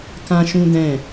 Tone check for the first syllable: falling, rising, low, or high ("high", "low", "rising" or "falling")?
high